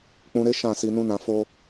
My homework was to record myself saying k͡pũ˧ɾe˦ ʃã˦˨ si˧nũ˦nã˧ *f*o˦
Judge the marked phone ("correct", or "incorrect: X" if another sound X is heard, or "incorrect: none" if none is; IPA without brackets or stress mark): correct